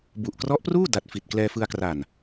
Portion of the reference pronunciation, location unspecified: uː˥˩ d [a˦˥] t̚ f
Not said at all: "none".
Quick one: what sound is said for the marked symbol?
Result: a˦˥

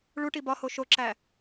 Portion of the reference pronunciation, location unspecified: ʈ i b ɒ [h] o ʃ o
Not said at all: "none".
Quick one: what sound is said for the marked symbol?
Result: h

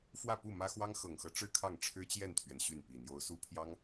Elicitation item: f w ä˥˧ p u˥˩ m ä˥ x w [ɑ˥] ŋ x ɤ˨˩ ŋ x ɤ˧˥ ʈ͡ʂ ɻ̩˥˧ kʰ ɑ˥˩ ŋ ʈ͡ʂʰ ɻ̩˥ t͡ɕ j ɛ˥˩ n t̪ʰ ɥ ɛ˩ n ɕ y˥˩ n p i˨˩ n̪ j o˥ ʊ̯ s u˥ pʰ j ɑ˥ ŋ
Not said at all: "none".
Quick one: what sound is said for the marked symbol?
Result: ɑ˥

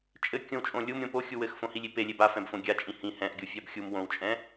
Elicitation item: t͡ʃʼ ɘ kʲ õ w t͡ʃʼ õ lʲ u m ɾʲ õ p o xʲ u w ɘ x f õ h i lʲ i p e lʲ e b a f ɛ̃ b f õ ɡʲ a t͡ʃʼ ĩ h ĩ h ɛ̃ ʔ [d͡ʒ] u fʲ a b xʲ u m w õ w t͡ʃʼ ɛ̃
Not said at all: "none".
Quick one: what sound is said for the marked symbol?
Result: ɡʲ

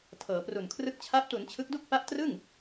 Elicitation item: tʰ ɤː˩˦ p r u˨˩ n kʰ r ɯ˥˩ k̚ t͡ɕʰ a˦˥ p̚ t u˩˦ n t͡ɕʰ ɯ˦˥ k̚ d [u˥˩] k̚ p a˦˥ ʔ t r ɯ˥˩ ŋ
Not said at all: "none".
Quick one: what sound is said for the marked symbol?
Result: u˥˩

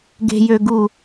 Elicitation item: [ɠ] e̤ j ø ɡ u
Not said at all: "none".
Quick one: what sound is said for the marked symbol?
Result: ɡ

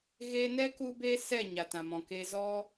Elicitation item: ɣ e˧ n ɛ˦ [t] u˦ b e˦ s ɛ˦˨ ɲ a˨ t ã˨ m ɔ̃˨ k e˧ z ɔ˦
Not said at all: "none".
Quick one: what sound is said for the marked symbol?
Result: k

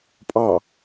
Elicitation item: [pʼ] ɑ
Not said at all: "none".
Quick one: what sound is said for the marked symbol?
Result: pʼ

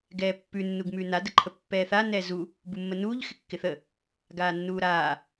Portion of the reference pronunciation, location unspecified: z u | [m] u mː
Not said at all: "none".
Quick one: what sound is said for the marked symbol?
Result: b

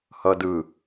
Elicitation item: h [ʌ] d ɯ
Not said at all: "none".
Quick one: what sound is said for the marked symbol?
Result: ʌ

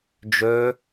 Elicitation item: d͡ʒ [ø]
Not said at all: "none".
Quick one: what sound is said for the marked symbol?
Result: ø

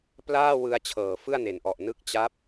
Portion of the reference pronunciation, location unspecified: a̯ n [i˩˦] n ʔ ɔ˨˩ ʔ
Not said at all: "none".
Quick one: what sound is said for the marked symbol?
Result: e˩˦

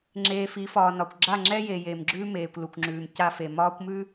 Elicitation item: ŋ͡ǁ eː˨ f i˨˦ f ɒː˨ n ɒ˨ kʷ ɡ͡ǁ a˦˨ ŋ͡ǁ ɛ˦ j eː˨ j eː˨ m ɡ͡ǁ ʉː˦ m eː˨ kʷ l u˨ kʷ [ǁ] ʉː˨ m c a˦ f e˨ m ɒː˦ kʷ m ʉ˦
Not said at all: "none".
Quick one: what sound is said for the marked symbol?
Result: ŋ͡ǁ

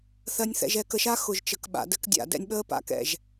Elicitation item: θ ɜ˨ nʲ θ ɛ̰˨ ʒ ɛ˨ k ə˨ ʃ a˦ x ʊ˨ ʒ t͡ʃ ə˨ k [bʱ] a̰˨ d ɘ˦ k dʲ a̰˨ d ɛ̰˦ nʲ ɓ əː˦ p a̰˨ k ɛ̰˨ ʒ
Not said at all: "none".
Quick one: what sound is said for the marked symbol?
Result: ɓ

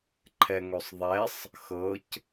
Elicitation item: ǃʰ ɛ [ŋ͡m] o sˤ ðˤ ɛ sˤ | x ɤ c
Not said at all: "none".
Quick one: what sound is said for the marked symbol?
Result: ŋ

